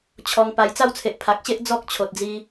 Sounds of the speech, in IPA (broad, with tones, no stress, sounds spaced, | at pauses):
t͡ɕʰ ɔ˧ ŋ p a˧ j t͡s a˥˧ w t͡sʰ e˨ ʔ pʰ a˨ k̚ ɕ e˦ ʔ d͡z ɔ˦ k̚ t͡ɕʰ o˨ t̚ d͡z i˧